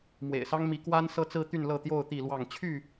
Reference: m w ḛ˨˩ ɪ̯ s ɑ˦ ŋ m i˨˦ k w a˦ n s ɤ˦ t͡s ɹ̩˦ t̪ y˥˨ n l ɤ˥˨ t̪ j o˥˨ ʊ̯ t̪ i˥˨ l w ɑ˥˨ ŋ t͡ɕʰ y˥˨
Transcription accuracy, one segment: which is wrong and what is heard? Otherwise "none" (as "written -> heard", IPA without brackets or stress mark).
none